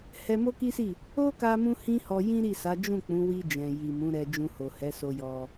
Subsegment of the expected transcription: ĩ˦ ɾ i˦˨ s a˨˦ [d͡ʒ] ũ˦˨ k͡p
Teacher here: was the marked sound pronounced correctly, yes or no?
yes